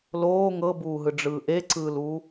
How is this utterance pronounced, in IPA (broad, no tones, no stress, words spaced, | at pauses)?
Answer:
loː ŋɤbuːɦɯɖ͡ʐɯː ʔeǀɯːluː